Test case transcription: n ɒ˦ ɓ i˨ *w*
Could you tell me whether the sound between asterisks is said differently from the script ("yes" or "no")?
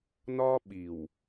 no